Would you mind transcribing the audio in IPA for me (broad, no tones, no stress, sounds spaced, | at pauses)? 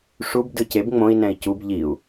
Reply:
ʂ u b d ɯ c e b ŋ͡m õ i̯ n ɛ̃ i̯ c u b ʎ i u̯